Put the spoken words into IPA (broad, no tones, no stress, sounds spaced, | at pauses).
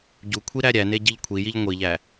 ɟ u kʷʰ i ɾ æ ɾʲ æ n e ɟ i ʎ kʷʰ i j i ʎ ŋʷ i ʎ æ